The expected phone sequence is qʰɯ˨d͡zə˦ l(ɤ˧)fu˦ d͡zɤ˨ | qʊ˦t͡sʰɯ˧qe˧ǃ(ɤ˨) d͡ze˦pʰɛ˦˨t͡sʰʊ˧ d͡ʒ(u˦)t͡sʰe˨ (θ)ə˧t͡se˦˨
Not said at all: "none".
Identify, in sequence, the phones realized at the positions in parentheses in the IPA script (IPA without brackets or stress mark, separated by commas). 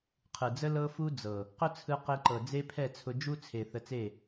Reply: ɤ˦, ɤ˨, u˦, θ